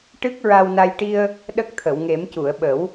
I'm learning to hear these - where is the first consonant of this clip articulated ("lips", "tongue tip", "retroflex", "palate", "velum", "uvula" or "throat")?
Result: retroflex